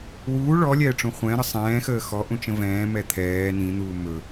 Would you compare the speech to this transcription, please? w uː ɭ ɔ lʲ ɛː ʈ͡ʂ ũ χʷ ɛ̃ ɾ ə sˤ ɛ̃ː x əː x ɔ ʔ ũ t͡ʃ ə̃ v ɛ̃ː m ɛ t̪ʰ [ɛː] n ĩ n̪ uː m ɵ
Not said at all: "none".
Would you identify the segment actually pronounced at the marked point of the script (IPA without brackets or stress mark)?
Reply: ɛː